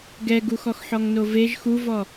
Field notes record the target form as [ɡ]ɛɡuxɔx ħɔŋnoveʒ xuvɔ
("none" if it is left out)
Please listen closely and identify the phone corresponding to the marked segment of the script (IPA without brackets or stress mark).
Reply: ɡ